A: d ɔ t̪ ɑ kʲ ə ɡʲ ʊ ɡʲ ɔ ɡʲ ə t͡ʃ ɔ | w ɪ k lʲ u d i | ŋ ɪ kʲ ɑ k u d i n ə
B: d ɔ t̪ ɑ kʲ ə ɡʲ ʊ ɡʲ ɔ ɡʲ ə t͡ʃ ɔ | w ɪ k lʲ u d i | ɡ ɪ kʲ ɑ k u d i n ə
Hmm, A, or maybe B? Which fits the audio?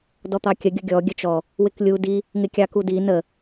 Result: A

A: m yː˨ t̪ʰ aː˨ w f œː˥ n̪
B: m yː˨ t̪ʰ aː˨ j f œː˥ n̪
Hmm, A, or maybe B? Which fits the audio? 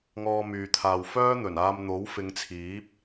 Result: A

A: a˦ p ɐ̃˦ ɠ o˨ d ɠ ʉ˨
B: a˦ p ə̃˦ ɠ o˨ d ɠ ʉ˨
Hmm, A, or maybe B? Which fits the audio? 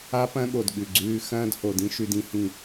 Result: A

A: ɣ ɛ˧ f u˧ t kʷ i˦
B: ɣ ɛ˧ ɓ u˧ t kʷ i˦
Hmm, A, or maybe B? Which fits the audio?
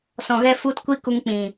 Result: A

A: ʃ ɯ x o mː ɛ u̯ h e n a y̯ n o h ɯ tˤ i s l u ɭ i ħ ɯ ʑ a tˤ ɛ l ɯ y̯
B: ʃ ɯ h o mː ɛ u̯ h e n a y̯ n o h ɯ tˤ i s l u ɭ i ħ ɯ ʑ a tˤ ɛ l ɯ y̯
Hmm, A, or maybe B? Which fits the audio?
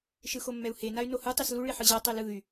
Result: A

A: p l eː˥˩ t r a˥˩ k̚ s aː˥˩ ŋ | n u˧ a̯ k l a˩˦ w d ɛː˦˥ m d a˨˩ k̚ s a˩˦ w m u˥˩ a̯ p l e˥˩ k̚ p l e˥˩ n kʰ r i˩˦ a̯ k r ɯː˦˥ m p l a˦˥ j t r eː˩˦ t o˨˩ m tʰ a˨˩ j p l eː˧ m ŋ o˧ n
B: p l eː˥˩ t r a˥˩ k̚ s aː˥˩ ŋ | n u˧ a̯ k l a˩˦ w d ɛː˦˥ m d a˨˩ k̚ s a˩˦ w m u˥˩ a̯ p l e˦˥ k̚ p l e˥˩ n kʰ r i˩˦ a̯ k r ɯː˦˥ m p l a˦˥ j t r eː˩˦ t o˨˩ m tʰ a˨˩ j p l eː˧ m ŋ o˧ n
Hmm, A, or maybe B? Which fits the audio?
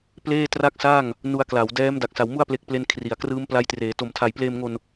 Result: A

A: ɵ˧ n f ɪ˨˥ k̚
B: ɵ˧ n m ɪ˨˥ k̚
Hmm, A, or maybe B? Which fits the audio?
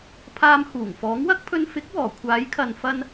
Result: A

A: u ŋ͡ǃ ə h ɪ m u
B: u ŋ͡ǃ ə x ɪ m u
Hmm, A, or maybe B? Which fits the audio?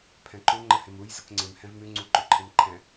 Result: A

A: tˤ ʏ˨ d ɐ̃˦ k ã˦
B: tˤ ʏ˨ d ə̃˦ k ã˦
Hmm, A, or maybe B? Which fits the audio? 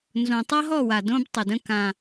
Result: B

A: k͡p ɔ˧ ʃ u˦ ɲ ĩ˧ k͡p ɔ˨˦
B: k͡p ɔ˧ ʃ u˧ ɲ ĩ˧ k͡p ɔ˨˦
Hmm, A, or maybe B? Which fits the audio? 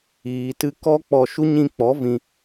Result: A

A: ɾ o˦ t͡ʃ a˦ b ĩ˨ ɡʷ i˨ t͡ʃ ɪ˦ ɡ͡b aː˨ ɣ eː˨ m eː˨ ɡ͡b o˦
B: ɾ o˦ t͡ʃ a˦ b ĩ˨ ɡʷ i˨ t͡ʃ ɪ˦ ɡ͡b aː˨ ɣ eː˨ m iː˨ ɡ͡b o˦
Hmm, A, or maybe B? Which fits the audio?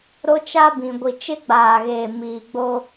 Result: B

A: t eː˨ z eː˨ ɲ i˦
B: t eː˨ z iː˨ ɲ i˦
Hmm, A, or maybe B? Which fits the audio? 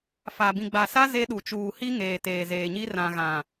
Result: A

